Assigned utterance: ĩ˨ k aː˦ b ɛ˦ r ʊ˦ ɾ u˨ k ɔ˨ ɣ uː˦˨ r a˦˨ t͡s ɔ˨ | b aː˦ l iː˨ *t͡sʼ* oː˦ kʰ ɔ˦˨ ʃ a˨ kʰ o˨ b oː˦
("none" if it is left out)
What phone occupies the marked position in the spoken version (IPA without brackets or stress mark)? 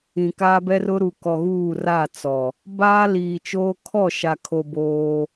t͡ʃ